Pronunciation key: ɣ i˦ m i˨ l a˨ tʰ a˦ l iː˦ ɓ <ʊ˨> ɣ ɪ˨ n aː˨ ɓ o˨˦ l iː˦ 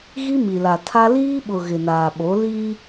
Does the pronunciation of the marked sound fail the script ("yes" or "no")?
no